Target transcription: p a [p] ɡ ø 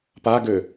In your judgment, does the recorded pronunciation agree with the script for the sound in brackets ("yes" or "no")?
no